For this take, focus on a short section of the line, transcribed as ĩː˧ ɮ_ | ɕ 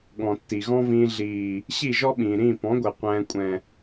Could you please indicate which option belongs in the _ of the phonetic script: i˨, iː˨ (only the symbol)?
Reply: iː˨